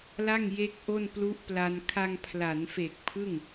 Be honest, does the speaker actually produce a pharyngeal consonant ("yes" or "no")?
no